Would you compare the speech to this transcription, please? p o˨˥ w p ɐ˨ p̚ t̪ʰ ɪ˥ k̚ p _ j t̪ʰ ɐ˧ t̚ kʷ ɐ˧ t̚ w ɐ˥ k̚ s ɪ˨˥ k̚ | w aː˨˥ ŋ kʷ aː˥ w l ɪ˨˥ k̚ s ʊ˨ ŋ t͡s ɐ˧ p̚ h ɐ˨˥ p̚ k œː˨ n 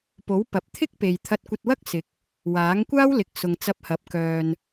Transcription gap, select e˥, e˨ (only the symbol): e˨